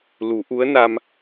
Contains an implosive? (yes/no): no